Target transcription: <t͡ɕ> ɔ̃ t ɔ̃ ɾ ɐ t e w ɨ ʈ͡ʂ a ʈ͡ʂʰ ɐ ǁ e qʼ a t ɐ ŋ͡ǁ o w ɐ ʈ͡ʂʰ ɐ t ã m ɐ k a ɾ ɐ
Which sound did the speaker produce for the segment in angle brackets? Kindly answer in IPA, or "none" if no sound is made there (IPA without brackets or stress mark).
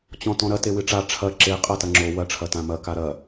t͡ɕ